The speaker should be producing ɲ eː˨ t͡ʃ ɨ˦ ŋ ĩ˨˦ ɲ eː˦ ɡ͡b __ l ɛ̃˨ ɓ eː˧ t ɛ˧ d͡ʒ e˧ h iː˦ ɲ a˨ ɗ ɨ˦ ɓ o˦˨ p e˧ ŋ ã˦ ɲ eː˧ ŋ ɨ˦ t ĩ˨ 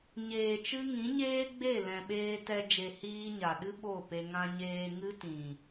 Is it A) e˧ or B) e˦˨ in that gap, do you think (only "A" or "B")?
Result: B